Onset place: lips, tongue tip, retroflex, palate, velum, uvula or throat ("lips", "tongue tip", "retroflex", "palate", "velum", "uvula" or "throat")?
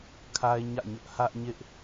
velum